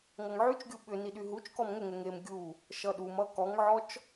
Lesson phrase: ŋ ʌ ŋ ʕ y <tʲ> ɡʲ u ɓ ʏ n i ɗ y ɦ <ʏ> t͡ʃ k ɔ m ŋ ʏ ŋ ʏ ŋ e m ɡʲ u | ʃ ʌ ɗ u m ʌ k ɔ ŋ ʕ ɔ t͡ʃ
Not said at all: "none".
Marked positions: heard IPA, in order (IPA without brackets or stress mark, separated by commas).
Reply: t͡ʃ, u